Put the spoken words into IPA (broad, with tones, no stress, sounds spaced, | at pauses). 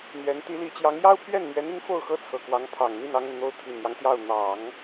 n̪ ɥ ɛ˧˥ n t̪ i˧˥ l i˧˥ t͡ɕ j ɑ˧˥ ŋ j ɑ˥ ʊ̯ pʰ ɥ ɛ˥˩ n m ɥ ɛ˧˥ n i˧˥ ŋ f o˥˩ ʊ̯ x ɤ˥ t͡sʰ ɤ˨˩ k w ɑ˧˥ ŋ pʰ ɑ˨˩ ŋ n̪ i˥˩ n ɑ˥ ŋ ə˨ n n̪ o˥ ʊ̯ t̪ʰ i˨˩ n j ɑ˦ ŋ t̪ j ɑ˥˩ ʊ̯ n̪ ɑ˨˩˦ ŋ